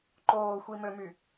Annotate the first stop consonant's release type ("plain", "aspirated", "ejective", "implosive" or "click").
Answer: click